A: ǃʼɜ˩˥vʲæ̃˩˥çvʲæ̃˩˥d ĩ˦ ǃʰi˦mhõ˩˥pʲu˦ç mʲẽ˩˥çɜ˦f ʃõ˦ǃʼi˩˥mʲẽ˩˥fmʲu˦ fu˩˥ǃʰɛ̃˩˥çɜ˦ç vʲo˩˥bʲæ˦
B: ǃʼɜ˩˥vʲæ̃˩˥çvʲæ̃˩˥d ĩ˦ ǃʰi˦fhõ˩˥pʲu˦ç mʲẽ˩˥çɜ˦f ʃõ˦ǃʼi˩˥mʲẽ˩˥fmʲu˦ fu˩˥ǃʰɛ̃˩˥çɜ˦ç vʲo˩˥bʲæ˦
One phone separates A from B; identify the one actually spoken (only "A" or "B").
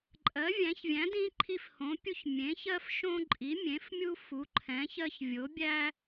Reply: B